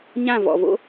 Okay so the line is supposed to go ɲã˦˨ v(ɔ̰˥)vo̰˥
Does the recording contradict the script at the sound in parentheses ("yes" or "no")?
yes